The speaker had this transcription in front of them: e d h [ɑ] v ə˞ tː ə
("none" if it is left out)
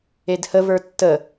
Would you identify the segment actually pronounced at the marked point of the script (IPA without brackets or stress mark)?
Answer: ə